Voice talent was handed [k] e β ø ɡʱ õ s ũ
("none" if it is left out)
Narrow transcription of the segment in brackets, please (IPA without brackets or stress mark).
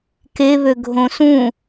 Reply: k